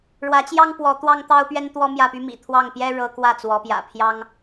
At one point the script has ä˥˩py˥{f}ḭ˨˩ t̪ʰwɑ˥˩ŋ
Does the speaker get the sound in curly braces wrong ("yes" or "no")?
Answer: yes